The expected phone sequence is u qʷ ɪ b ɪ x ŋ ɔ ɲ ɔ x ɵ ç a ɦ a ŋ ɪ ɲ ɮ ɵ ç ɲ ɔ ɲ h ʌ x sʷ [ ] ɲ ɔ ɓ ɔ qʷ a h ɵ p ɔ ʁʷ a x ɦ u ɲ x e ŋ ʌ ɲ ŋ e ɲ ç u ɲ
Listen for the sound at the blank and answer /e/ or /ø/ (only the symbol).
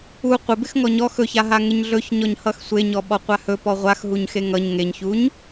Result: e